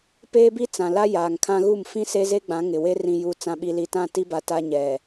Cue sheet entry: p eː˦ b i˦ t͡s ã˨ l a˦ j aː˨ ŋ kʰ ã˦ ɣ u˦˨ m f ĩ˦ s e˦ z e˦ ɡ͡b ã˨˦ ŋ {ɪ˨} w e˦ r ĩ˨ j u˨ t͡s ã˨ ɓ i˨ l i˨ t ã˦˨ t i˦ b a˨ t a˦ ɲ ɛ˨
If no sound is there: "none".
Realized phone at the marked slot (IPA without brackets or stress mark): ɪ˨